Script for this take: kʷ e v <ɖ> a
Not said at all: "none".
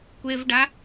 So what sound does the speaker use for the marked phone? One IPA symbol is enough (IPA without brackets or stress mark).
ɖ